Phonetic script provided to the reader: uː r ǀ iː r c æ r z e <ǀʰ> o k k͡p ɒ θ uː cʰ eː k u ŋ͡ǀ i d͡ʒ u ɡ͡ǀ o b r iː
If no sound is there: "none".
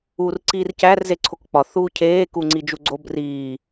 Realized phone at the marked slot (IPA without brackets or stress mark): ǀʰ